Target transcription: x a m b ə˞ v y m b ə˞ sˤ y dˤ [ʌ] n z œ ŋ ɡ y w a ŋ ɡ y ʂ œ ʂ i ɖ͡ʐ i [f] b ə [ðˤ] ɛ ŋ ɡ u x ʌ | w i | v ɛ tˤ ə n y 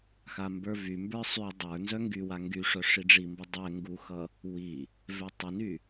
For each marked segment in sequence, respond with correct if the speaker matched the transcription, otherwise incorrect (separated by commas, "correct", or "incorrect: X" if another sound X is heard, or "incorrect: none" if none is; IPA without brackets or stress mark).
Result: incorrect: ə˞, incorrect: m, incorrect: dˤ